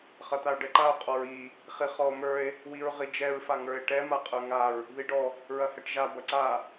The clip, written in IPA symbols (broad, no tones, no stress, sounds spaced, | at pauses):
χ ɐ t̪ a o̯ ɖ ɛ ǃ a o̯ qʼ ɔ ɹ i | χ i χ ɔ o̯ m ə˞ e̯ | w i ɹ ʁ i d͡ʒ ɛ ɹ f a ŋ ə˞ e̯ ʈ ɛ m a qʼ ə˞ ŋ a ɹ | ð i ɖ ɔ | ɹ ɐ h ɛ ʈ ʒ a b ɐ ǀ a